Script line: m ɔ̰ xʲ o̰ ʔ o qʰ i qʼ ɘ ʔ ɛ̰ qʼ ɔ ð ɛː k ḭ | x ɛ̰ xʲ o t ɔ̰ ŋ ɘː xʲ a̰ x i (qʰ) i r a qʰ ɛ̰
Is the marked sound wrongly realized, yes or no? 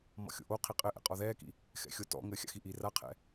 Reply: yes